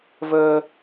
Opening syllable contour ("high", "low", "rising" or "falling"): high